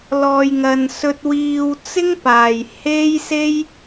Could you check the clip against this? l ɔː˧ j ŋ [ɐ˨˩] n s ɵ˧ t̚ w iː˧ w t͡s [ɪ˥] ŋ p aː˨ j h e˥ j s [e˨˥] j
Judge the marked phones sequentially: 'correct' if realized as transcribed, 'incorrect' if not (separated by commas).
incorrect, correct, incorrect